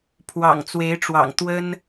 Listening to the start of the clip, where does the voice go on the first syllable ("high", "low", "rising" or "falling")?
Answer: low